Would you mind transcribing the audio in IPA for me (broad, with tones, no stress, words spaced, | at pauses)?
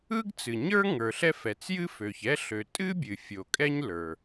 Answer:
ɯ˥ɡt͡sɨ˩ɲə˞˥ ŋə˞˩ɬɛ˥ fɛ˩t͡sjɨ˥fø˩çɛ˥ ɬø˩tʼɨ˥ bʲɨ˩fʲo˩ kʼɛ˥ɲlə˞˩